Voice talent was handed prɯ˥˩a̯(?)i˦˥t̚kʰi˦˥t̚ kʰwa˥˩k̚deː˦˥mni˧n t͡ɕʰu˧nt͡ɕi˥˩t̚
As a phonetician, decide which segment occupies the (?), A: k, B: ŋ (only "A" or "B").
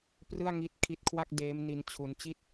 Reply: B